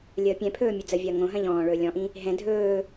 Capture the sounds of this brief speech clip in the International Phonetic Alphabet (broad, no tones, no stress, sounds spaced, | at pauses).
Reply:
lʲ əː pʲ ɛ̃ pʰ ɵː mʲ ɵ d͡z ə vʲ ɐː ŋ õ ɦ ɐ̃ ʎ ɔ̃ː ɭ ɵː lʲ ɔ̃ ʔ ĩ | ɦ ɛ̃ dʱ ɵː